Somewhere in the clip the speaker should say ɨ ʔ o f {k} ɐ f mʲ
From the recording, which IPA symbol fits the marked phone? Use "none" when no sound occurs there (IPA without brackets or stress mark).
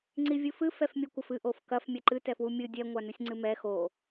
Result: k